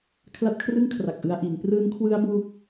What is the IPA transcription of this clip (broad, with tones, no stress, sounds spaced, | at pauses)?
kʰ l a˦˥ t̚ kʰ r ɯ˥˩ ŋ kʰ r a˨˩ k̚ ʔ ɯ˧ a̯ ʔ i˩˦ n p r ɯː˦˥ n kʰ w ɯ˦˥ a̯ b uː˥˩ k̚